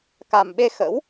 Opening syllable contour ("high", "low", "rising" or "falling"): low